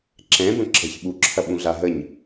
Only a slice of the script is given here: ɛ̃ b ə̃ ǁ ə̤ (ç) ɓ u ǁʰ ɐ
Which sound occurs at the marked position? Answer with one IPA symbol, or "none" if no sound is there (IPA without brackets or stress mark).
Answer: ç